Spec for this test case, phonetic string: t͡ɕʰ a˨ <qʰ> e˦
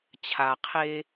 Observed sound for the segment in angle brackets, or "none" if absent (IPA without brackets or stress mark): qʰ